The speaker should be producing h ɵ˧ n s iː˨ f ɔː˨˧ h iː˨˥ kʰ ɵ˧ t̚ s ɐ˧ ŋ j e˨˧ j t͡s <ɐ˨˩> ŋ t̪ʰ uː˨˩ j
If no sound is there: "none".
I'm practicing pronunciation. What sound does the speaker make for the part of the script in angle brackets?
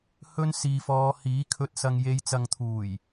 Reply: ɐ˨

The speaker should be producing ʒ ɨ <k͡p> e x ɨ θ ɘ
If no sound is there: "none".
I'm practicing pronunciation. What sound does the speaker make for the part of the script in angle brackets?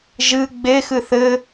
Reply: ɡ͡b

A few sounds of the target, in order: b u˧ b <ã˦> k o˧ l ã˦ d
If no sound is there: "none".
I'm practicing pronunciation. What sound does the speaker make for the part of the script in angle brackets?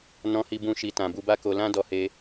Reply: a˦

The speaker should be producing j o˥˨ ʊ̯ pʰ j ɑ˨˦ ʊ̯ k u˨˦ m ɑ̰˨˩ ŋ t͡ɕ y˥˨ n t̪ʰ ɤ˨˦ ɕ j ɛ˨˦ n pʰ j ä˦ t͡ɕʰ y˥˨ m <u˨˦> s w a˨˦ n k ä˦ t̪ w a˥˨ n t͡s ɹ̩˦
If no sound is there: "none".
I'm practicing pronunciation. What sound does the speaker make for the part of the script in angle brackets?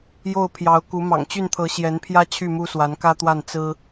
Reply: u˦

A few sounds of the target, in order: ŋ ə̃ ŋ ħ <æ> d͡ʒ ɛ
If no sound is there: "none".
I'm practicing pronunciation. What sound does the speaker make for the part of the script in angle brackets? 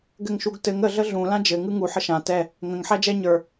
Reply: æ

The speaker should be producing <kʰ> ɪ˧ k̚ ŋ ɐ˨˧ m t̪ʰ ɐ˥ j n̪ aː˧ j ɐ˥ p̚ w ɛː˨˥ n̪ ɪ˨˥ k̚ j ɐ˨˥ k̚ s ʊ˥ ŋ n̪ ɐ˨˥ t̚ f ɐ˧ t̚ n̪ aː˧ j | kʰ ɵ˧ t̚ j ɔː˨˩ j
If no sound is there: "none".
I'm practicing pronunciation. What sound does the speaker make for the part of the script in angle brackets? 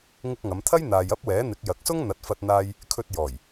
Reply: ŋ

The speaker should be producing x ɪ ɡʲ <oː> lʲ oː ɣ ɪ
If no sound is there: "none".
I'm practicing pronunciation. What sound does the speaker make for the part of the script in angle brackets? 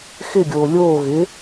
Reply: oː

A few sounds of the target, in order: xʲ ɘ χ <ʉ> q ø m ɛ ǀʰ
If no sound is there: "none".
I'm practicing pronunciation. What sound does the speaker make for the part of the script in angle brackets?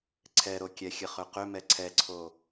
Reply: ø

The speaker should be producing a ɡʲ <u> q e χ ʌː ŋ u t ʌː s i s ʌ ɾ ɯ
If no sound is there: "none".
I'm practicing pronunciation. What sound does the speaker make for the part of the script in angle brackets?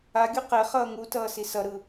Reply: u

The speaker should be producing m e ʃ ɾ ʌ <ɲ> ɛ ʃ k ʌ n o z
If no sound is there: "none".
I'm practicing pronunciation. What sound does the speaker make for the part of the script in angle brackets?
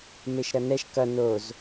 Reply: n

